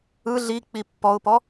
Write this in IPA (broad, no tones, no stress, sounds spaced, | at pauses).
ɯ ɮ i k͡p i pː ɔ ʊ̯ p ɔ